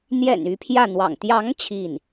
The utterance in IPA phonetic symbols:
n̪ j ɛ̰˨˩ n y˧˥ pʰ j ä˥˩ n̪ w ɑ̰˨˩ ŋ t̪ j ɑ˧˥ ŋ t͡ɕʰ i˥˩ n

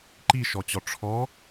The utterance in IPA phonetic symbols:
ǃ i ʃ ɔ t͡ɕ ɔ ʈ͡ʂʰ ɔ

